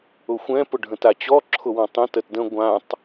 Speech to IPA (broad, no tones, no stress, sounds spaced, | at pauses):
ʊ xʷ ɛ̃ p ʊ ɖʱ ə̃ t a t͡ɕ ɔ ǁʰ ʊ w ɔ̃ tˤ ə̃ t ə t d ə̃ ɡʷ ã tˤ